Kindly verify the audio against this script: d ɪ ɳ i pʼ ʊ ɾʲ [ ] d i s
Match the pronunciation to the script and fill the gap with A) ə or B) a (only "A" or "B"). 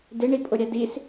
B